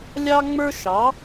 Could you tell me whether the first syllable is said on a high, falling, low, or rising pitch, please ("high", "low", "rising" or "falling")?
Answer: high